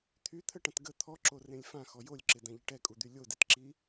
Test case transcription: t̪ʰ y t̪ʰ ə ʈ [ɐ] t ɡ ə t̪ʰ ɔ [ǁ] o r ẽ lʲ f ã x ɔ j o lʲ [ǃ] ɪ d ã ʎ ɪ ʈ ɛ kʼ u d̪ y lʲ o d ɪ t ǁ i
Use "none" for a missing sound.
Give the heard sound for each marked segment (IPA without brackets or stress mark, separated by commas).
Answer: ɐ̃, ǁ, ǁ